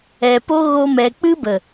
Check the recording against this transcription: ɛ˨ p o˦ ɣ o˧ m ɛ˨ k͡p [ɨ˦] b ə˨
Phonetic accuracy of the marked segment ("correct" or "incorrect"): correct